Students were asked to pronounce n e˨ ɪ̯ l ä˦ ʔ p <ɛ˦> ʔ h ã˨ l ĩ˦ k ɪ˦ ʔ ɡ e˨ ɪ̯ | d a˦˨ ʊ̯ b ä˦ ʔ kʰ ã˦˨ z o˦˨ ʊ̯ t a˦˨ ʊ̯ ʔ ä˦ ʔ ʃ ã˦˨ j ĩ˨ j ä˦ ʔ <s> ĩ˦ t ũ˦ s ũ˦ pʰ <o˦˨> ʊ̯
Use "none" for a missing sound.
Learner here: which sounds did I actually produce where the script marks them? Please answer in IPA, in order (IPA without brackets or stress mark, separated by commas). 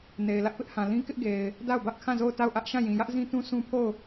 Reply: ɪ˦, z, o˦˨